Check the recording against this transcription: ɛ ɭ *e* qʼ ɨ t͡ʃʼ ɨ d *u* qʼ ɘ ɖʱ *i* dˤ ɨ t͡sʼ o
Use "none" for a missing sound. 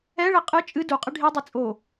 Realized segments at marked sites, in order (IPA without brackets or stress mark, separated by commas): ɘ, u, i